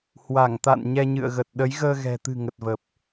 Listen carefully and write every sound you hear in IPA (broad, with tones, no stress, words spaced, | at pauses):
hwa˧˩ŋt̪a̰˧˨n ɲɛ˧ɲɨ̰˧˨ə̯ɣə˨˩t̚ ɗə˨˦jɣəː˧ɣɛ̤˨˩t̪ɨ̤˨˩ ŋə˨˩t̚və˨˩p̚